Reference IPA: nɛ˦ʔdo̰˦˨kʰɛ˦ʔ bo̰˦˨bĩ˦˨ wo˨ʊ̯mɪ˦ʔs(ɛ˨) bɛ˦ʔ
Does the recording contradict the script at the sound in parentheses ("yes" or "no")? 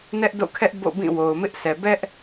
no